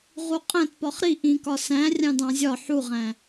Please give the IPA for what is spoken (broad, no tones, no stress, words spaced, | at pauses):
ʁuqʼæ̃tpɒχ ɾi ʔĩkɒ sæ̃ rʲɑ̃dɑ̃zʲɒ ħuʁæ̃